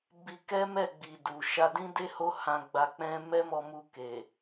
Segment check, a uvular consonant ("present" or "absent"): absent